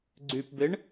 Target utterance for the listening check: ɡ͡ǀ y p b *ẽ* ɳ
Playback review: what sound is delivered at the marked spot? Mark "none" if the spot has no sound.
e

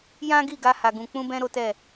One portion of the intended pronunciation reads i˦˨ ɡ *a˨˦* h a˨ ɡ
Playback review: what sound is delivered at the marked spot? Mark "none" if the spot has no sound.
a˧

